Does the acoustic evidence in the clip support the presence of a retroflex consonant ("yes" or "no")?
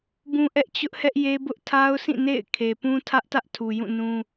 no